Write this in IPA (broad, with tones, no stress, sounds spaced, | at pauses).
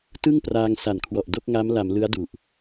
t ɯ˥˩ ŋ p r aː˧ ŋ s a˨˩ n kʰ w ɔ˨˩ ʔ d o˥˩ k̚ ŋ a˦˥ m l a˩˦ m l ɯ˦˥ a̯ d u˨˩ ʔ